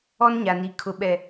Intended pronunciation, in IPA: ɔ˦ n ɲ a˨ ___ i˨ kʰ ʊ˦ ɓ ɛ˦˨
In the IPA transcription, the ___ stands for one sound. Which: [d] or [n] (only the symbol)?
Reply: n